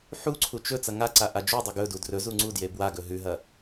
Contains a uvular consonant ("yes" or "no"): no